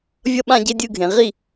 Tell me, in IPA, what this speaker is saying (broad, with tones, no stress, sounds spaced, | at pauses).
vʲ ʌ˦ ɓ ã˦ ɟ e˦ dʲ ɯ˥˨ ɡʱ ẽ˨˦ ʁ i˥˨